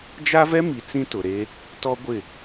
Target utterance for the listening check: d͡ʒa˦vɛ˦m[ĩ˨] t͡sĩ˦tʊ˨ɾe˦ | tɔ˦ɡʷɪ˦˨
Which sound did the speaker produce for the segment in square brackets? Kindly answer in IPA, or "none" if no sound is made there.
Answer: i˨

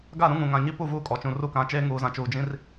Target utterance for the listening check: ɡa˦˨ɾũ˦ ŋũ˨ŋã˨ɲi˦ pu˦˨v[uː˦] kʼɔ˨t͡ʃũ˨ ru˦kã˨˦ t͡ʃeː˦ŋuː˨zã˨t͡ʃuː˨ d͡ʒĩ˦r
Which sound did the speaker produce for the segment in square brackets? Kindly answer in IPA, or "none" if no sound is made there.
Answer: uː˦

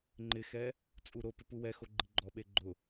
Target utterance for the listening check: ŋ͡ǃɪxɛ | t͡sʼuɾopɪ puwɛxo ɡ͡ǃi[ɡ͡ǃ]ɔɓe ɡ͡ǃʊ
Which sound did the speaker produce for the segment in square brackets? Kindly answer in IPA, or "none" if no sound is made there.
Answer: ɡ͡ǃ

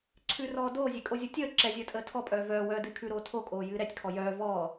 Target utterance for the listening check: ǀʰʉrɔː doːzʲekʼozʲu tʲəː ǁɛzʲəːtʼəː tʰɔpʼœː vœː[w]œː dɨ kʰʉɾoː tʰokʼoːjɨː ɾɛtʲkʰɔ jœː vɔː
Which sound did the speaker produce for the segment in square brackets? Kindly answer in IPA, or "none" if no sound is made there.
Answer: w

